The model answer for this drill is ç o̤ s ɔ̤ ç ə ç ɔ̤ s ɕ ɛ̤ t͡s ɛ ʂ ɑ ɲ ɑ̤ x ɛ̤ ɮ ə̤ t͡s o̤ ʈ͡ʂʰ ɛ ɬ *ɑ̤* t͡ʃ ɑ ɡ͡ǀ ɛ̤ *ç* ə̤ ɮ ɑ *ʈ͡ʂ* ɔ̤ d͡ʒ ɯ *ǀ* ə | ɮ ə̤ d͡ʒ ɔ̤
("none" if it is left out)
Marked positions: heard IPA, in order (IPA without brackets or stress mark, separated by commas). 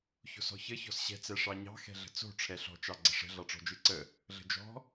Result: ɔ̤, ʂ, ʈ͡ʂ, ǀ